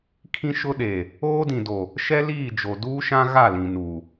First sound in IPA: kʰ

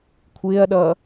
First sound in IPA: kʷʰ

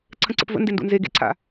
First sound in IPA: ǀʰ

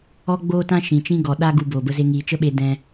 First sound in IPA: ɔ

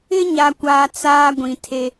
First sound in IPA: ɪ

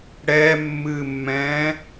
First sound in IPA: ɽ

